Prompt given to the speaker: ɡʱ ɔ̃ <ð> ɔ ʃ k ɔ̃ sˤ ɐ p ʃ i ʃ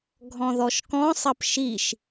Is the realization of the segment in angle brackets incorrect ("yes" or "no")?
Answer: no